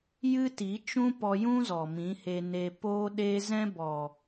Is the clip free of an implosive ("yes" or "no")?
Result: no